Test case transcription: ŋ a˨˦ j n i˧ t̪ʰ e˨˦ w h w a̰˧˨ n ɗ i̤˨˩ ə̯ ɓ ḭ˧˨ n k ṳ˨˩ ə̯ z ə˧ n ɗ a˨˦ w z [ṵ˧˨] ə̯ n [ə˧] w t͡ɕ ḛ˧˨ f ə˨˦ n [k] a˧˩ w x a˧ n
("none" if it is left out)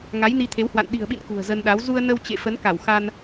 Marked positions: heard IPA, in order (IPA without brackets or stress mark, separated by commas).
u˧, ə˧, k